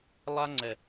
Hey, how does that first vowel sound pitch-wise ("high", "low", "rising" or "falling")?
high